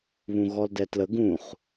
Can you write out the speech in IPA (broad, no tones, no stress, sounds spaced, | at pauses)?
β ũ ɣ ɔ l d ɛ t l ə ɡ ũ χ